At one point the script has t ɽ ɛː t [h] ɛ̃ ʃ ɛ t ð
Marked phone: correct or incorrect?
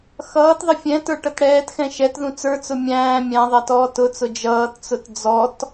incorrect